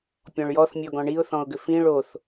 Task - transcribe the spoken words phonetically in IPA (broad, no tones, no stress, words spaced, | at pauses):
pʲɔ̃ɭjɔθmʲɔɡɔ̃ ɳiʊ̯θɔ̃ʊ̯ɡʏ fĩ ɭoθ